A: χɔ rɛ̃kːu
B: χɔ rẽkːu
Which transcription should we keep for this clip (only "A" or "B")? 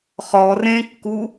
B